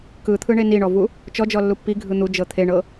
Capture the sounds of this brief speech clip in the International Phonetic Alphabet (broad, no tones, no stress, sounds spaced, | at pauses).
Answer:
k ɯ t̪ʰ ɯ ɳ e n i ɳ ɔ v u | t͡ʃ ɔ d͡ʒ ɔ lː u pː i ɡʱ ɯ n̪ u d͡ʒ ɤ t̪ʰ e ɳ ɤ